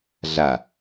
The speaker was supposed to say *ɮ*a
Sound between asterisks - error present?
no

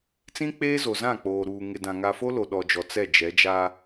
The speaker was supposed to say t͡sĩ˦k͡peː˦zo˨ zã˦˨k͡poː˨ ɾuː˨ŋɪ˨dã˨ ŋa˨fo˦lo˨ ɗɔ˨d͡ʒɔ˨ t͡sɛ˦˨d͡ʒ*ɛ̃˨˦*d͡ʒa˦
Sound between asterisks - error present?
yes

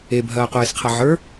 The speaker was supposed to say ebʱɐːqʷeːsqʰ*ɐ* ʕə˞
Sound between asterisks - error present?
no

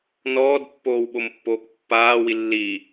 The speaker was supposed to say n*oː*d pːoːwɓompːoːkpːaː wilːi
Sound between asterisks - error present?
yes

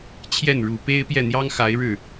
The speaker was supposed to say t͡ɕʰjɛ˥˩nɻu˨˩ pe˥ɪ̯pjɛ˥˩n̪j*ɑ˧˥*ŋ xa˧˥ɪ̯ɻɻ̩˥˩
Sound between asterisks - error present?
yes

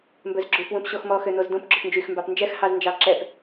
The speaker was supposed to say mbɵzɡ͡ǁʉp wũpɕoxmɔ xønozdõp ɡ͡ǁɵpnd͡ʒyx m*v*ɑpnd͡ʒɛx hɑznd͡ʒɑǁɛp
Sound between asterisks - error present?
yes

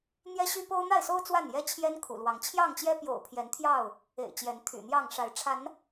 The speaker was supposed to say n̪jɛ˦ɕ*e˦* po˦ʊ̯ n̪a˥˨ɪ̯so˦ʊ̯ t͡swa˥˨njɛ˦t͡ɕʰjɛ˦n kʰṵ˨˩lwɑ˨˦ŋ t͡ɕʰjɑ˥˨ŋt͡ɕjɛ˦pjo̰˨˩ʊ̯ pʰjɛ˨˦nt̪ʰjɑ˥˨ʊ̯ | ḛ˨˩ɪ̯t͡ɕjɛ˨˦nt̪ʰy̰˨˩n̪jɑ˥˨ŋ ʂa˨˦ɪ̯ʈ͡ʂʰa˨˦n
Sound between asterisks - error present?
yes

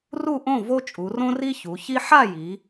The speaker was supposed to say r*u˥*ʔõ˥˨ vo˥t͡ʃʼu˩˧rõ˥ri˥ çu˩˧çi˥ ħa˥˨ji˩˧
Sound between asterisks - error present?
yes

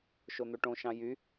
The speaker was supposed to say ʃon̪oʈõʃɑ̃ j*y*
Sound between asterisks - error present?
no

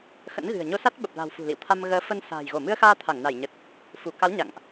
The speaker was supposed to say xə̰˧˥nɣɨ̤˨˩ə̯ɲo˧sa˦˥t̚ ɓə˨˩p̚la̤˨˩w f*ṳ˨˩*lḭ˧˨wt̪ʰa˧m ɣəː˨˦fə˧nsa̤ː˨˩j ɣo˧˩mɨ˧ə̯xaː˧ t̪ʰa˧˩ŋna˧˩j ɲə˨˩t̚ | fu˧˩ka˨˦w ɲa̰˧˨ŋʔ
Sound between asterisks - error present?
no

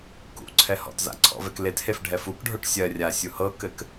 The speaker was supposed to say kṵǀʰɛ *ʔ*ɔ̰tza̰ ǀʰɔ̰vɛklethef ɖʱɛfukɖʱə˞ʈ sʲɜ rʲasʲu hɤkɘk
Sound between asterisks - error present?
yes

